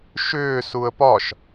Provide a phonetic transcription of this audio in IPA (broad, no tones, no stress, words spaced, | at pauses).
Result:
ʃʏː suə̯pɒʃ